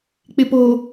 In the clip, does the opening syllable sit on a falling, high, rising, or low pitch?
low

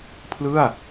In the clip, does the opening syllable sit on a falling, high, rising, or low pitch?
falling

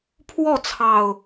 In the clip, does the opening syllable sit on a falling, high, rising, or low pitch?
falling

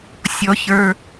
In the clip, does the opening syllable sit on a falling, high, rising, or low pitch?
low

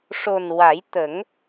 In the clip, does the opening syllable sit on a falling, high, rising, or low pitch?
low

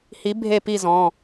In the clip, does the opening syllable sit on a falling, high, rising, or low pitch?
rising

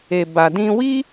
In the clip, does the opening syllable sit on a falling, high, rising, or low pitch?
low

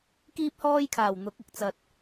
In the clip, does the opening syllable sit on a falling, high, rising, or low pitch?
high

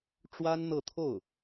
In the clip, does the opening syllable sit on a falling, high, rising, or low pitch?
high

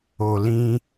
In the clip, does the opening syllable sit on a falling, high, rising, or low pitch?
low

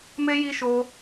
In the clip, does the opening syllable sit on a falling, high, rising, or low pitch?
high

